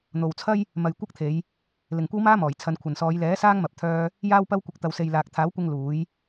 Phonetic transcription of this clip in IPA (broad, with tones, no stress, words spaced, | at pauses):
n̪o˨wt͡sʰɐ˥j | mɐ˨j kʷɐ˥k̚t̪ʰe˨˧j | lɪ˨ŋkʷɐ˥wmaː˥mɔː˨˩j t͡sʰɐ˨˧nkʷʰɐ˨nsɔː˨˧j lɛː˨˥ saː˥ŋmɐ˨p̚ t̪ʰœː˥ | jaː˥wpɐ˥wkʷɪ˧k̚ t̪ɐ˨wse˨jlaː˨k̚ t̪ʰaː˨˥wkʷɪ˧ŋ luː˨˥j